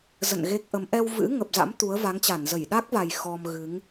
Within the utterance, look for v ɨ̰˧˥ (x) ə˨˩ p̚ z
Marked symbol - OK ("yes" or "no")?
no